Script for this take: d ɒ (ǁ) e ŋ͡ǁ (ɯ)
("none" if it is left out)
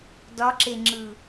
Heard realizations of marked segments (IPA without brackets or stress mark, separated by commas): ǁ, ɯ